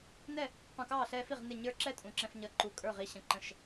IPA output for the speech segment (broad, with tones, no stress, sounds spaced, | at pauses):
n ɛ˥˨ | q ũ˧˩ k ɑː˥˨ ɬ ɛː˦ f i˥˨ ʁ n ɪ˥˨ ɲ ə˞˦ ǁ ɛ˥˨ tʼ ũ˧˩ ǁ ɛ̃˦ f ɲ ʌ˨˥ ǃ u˧˩ kʼ ə˞˥˨ ʁ i˨˥ ɕ ə̃˨˥ ǃ ə̃˧˩ ʃ